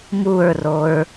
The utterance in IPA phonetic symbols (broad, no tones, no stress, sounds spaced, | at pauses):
m u ɹ r o ɹ